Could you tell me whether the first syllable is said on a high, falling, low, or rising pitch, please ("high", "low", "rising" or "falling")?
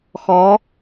rising